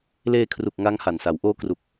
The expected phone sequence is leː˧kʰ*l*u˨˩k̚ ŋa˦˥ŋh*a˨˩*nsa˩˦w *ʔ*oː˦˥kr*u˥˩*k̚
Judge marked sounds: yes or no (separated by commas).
no, yes, yes, no